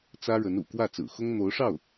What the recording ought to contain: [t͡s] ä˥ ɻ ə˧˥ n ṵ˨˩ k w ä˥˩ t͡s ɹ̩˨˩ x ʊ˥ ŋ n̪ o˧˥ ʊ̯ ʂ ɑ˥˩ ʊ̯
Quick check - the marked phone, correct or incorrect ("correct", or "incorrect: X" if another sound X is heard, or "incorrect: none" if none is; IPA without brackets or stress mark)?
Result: correct